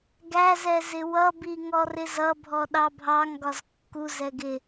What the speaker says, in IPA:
ɡ æ z ɛ z ɪ w ʌ b i ŋ ɔ r ɪ z ʌ bʱ ɔ ɗ ɑ bʱ ɑ ŋ ɡ ɒ z kː u z ɛ ɡ ɪ

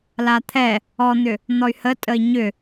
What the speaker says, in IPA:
l a t̪ʰ ɛ | ɔ n̪ ʏ | n̪ ɔ y̯ h ə tʼ ə i̯ ɲ ʏ

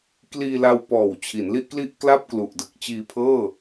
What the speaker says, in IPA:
k l iː˧ l a˧ w p ɔː˨˩ w t͡ɕʰ i˩˦ n l i˥˩ ʔ k l i˥˩ ʔ k l a˥˩ p̚ k l u˨˩ ʔ d ɯ˨˩ k̚ t͡ɕ iː˧ pʰ ɤː˥˩

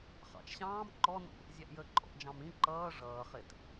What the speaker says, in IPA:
χ ɑ̰ t͡ʃ ɕ ɑ̃ː m ǃ ɔ n ṵ | zʲ æ ʔ j ə ǃʼ ɔ̰ ʔ d͡ʒ ɑ̃ m ĩ ǃ ʌː ʐ ʌː χ ɪ t

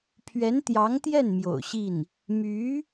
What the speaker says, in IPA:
pʰ ɥ ɛ˧˥ n t̪ j ɑ˧˥ ŋ t̪ j ɛ˥˩ n m j o̰˨˩ ʊ̯ ɕ i˥˩ n | m y˧˥

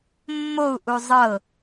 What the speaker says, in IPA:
mː o u̯ ʔ u zˤ ɤ

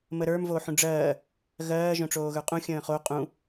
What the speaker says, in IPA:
m ə ɾ ə˞ m v o ħ ũ ɖ͡ʐ ɜː | ɣ ɜː ʒ õ ʈ͡ʂ oː ɣ ə˞ qʼ ũ xʲ ə̃ː χ o qʼ ũ

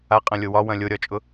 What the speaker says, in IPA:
a qʼ ɐ̃ lʲ o w ɒ w ɐ̃ lʲ o ɾʲ ɒ t͡ʃʼ ʊ

